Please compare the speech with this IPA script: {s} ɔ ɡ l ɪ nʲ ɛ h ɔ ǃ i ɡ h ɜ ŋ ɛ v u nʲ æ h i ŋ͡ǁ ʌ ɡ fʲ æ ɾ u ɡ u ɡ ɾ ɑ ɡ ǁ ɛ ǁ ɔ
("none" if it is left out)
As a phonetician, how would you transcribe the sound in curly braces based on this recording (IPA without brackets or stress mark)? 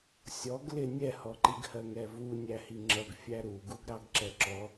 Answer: sʲ